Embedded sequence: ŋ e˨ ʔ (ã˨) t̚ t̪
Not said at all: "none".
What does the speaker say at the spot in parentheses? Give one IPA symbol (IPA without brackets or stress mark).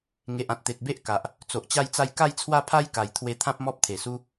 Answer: ã˨